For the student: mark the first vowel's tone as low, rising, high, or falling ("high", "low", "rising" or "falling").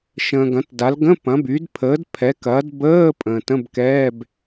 low